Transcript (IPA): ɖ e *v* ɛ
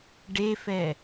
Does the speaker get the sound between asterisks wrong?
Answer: yes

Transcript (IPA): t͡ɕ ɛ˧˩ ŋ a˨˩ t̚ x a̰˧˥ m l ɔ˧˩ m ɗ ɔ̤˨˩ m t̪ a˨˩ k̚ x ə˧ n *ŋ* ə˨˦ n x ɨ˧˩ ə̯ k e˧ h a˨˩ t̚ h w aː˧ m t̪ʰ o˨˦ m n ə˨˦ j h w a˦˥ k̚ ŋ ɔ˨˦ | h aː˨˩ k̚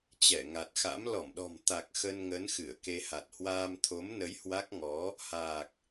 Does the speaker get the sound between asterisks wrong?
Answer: no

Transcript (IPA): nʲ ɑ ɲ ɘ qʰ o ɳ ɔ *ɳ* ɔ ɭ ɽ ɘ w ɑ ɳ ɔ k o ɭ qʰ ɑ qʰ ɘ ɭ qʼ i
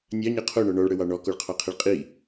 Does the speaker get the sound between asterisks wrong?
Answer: no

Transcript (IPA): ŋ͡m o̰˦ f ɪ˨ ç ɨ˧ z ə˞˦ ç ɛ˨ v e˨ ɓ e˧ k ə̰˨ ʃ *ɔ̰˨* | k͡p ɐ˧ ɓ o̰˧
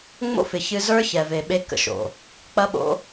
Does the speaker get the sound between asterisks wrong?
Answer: yes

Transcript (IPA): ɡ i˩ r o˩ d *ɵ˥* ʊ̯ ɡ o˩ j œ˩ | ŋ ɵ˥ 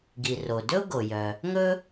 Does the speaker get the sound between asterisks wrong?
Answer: no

